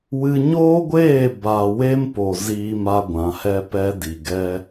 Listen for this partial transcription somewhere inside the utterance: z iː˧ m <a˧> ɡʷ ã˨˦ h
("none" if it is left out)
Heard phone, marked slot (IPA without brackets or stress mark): a˧